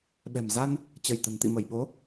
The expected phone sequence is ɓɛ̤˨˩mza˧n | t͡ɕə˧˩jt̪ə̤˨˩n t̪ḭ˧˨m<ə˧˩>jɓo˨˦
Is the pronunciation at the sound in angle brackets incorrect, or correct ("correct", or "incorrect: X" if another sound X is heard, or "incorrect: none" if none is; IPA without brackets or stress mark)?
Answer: correct